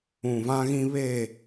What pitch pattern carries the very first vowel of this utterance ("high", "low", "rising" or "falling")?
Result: low